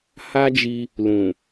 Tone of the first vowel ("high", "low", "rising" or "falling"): high